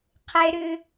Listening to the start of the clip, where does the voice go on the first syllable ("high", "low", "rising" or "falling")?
high